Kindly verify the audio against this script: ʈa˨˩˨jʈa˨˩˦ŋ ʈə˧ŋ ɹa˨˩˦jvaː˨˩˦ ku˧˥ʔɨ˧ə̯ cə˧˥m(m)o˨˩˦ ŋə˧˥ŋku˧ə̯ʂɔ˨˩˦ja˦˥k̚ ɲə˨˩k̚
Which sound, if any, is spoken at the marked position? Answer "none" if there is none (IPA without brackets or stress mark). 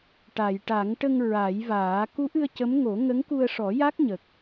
ŋ